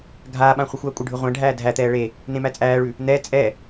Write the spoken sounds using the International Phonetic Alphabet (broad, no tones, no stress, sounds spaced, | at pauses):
ɡʱ aː ɓ ã χʷ ɘ xʷ aː kʷʼ ɘ ɖʱ ʉ ʁʷ æ̃ ɖʱ æː dʱ æ t̪ ɛː ɭ e | n ẽ m æ t͡sʼ æː ɭ ʉ | n̪ ɛ t͡sʼ ɛ